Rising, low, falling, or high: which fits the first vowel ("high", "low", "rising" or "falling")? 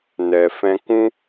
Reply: low